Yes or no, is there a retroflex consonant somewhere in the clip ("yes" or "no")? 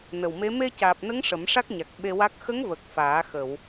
yes